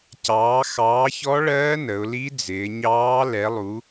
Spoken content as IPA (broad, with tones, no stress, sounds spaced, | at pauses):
c ɑː˩˧ x ɑː˩˧ ç ɔ˧˥ ɭ ɜː˧˥ n ə˩˧ ʊ̯ l i˧˥ d͡z ɪː˩˧ ɲ ɑː˧˥ l ɛ˩˧ lˠ u˩˧